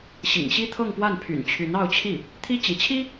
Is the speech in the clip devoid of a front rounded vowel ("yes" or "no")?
no